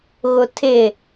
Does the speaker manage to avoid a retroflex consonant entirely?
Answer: yes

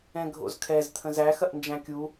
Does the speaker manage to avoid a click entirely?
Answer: yes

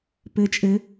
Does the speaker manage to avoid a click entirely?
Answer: yes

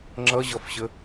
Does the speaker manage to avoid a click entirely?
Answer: no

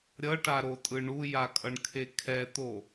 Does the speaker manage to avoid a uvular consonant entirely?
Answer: yes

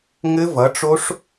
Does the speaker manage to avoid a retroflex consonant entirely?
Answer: no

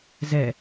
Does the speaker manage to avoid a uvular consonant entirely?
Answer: yes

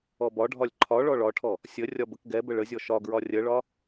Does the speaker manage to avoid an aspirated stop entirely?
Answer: no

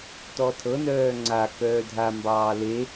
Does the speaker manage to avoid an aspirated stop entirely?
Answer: no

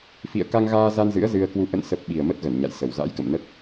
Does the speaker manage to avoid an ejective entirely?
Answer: yes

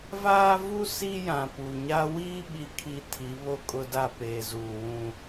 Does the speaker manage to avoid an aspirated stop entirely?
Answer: no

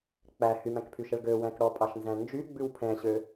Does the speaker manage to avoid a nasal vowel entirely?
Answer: no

